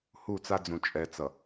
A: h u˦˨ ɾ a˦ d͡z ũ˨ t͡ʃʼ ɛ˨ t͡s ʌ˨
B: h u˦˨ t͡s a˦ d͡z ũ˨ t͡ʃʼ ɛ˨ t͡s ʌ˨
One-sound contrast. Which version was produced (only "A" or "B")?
B